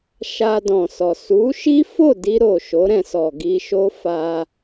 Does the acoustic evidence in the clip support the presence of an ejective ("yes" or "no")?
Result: no